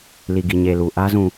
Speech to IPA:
l i˨ ɡ i˨ ɲ e˨ l u˨ ʔ ä˦ z ũ˨

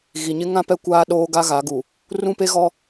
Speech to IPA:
ɣ i˨ ɲ ɪ˦ ŋ ã˦ p ɛ˦ kʷ aː˦ ɗ oː˦ ɡ a˦ ɣ a˨˦ ɡ u˨ | r ũ˦ p e˦ ɣ ɔ˦

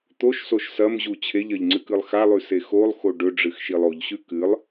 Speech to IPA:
t̪ o ʃ s o ʃ s ɐ m ʑ u t͡ɕʰ e ʎ ɐ ʎ ŋ͡ǀ ɨ k ɨ lˠ x a lˠ ʉ s e x o lˠ x o ɖ ɵ ɖ͡ʐ ɨ x ʃ i lˠ o ʎ ɕ ʉ k ɨ lˠ

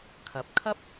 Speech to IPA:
kʰ ɐ˨ p̚ kʰ ɐ˥ p̚

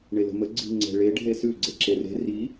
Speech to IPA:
ɳ e l ə̤ m ə ɡ͡ǀ i̤ ŋ͡ǀ ɛ̤ ɭ e ɖʱ e s ʉ ɡ͡ǀ e ǁ e r e̤ r i

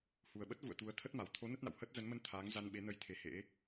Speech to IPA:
h u˨˩ ə̯ ɓ ə˦˥ t̚ ɣ ṵ˧˨ ə̯ t̪ u˨˦ ə̯ t̪ʰ ə˦˥ t̚ m a˨˩ w t̪ʰ o˨˦ n ə˦˥ t̚ n a̰˧˨ w h əː˦˥ t̚ z ə˨˦ n m ə˧ n t̪ʰ aː˨˦ ŋ z a˧ n ɓ e˨˦ n ə˧ j t̪ʰ e˨˦ h ḛ˧˥

